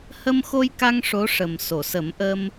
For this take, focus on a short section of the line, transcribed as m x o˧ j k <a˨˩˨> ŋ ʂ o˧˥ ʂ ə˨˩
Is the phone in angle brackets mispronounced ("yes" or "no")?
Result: yes